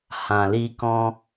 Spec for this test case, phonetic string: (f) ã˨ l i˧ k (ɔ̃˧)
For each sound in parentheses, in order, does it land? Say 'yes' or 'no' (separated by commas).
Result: no, yes